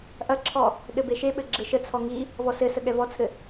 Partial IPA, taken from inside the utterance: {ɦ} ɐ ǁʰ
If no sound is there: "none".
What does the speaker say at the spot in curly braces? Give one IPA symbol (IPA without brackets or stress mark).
ʔ